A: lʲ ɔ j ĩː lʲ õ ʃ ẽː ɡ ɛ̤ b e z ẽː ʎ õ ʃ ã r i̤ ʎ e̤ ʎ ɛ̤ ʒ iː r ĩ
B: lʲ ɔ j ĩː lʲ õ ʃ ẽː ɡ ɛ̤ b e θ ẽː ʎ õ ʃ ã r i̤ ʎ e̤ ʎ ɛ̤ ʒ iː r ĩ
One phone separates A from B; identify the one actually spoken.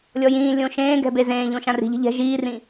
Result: A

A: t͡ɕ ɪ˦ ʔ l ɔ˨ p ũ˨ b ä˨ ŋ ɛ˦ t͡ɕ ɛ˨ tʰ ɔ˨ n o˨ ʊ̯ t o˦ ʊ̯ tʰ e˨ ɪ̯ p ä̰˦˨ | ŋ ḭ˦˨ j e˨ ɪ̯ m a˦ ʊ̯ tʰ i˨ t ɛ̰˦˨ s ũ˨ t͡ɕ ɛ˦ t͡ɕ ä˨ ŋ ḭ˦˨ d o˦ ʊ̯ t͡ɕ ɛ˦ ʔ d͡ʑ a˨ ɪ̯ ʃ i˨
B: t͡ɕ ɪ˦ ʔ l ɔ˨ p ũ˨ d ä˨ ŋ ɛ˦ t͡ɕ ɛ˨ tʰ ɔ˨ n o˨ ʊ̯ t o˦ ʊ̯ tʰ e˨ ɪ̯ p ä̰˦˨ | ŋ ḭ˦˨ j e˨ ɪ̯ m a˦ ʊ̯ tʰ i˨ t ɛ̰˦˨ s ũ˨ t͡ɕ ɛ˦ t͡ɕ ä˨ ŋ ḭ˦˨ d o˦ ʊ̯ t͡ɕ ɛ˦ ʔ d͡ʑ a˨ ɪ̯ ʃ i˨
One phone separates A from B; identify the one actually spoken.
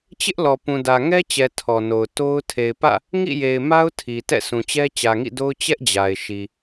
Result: B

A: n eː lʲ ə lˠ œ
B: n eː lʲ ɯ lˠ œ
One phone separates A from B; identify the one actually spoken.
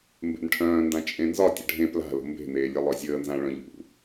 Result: A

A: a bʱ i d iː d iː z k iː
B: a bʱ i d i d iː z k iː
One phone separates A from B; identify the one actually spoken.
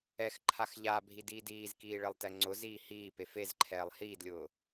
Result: A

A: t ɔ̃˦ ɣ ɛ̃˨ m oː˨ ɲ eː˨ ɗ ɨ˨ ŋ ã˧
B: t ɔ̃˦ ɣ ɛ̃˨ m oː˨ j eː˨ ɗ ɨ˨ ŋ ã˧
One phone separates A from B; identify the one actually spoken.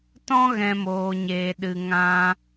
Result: A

